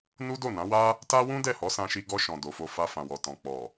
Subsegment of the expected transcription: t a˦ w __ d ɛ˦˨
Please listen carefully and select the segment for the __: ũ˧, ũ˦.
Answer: ũ˦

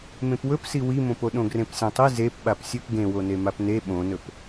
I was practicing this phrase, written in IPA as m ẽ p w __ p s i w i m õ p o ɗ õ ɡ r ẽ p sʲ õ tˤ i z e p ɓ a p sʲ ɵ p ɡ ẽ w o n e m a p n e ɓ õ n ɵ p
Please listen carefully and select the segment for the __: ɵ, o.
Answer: ɵ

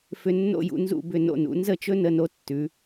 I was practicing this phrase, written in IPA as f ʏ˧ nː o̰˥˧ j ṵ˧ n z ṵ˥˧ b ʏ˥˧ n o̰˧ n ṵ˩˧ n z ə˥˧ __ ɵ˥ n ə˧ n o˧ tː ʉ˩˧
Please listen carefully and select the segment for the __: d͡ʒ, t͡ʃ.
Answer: t͡ʃ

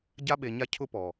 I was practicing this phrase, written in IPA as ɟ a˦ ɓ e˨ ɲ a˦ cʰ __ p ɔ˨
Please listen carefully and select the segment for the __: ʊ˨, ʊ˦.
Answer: ʊ˦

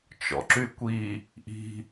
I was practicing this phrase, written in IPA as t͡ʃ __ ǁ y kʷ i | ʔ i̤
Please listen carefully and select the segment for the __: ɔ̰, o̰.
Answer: ɔ̰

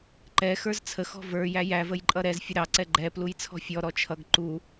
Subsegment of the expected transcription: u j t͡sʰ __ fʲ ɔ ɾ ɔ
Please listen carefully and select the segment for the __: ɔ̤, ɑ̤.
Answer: ɔ̤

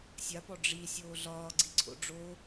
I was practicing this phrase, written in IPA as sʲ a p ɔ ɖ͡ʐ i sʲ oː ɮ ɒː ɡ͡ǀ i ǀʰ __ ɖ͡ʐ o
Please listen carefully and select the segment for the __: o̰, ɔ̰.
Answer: o̰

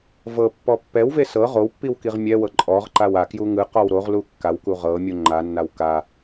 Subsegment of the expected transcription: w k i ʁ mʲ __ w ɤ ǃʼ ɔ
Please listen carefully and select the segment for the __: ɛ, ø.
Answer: ɛ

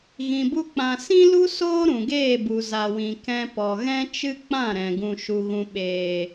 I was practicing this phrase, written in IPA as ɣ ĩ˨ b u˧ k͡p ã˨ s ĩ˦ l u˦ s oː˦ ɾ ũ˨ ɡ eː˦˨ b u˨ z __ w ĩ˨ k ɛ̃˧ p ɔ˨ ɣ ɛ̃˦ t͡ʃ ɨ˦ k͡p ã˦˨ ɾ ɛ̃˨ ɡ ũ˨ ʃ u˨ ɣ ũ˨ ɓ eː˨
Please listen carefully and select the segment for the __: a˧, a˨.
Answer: a˨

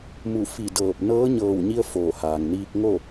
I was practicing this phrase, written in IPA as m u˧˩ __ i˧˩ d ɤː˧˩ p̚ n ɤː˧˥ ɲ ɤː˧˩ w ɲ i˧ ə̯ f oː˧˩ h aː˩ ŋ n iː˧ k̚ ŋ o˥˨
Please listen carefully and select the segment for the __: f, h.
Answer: f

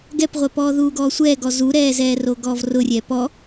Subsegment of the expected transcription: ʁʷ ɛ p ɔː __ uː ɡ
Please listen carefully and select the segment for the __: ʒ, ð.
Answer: ð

